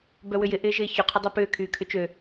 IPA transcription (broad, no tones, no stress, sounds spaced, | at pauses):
b œ w ʏ j ɪ ʔ ɪː ʒ ɪː ç ʊ qʰ ʊ dˤ œ p ʏː kʰ yː kʰ ʏ t͡ʃ ø